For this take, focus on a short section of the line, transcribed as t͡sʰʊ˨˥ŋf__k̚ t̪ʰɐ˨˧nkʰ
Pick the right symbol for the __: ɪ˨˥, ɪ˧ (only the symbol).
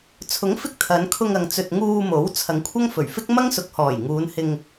ɪ˧